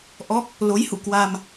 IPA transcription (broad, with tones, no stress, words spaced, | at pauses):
ʔɔ˦˥k̚ | lo˨˦jhṵ˧˨ kwa˧m